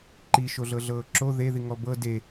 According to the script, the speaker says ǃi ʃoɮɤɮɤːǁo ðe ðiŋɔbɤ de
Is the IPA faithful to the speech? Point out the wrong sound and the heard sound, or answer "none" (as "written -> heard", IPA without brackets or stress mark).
none